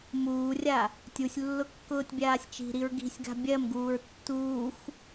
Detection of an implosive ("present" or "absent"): absent